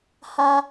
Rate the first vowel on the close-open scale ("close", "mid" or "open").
open